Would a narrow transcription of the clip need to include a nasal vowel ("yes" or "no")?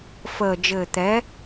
no